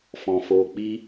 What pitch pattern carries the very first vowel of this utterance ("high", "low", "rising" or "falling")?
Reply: low